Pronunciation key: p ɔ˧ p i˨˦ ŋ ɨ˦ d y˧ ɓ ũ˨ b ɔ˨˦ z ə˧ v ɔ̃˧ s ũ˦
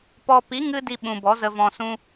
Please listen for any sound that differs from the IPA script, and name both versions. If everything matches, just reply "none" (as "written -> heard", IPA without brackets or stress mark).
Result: y˧ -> i˧